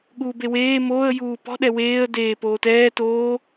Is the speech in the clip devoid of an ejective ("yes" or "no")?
yes